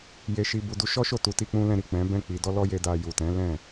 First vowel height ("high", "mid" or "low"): mid